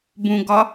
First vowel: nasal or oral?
nasal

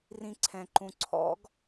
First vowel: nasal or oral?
nasal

